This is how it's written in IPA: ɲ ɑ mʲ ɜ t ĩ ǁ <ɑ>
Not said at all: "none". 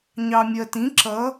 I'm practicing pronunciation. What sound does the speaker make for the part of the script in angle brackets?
ʌ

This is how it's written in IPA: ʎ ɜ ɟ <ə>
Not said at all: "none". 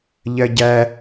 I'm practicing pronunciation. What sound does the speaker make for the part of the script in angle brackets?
æ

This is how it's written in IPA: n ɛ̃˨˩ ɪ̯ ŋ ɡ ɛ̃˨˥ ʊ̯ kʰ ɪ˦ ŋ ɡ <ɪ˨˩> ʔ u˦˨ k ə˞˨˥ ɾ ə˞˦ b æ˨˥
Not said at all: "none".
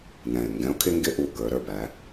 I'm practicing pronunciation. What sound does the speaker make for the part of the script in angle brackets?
ɪ˦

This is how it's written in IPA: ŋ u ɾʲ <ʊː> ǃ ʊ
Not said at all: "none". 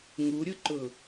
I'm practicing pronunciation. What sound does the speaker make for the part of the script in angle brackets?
ʊ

